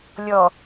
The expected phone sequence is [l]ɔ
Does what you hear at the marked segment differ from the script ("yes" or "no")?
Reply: yes